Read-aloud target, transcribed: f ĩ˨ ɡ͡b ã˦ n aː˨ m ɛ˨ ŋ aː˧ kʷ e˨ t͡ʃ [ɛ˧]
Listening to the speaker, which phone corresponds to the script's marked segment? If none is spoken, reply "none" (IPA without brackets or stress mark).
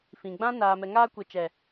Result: ɛ˨